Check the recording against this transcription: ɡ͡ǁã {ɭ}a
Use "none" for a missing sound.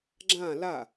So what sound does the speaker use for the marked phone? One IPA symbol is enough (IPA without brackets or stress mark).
l